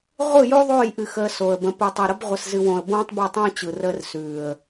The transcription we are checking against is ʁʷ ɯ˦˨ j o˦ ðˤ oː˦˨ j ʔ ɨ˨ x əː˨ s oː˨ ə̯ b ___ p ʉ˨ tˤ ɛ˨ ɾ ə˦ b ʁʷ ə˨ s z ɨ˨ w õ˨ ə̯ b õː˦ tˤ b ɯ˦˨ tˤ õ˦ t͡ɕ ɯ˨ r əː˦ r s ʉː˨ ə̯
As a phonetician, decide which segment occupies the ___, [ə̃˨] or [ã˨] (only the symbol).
ə̃˨